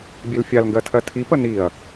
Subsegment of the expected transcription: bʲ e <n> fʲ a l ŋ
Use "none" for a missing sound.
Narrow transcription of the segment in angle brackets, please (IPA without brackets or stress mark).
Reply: l